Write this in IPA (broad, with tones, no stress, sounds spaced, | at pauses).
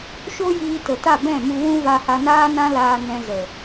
ʃ o˦ j iː˧ t ə˨ t a˦˨ b ɛ̃˦˨ m u˧ w ũ˦ v a˧ h a˧ n aː˦ n ã˦ l aː˧ n ɛ̃˧ z ə˨